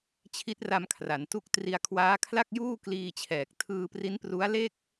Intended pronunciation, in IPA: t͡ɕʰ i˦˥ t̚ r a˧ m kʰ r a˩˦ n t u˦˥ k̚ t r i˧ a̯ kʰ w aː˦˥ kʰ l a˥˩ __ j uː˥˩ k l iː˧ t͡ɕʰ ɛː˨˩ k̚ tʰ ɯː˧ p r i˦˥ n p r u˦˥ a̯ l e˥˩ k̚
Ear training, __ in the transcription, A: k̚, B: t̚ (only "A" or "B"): A